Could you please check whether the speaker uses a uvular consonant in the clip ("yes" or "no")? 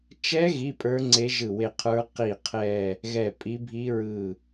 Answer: yes